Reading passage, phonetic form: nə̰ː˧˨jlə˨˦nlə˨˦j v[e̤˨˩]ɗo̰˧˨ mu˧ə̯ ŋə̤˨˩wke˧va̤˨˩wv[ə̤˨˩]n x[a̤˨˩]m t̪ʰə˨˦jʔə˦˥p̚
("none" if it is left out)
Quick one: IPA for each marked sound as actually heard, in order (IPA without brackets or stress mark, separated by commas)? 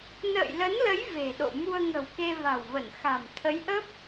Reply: e̤˨˩, ə˧˩, a̤˨˩